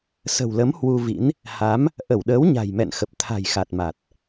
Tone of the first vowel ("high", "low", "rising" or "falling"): low